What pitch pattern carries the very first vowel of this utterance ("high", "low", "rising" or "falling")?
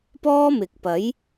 high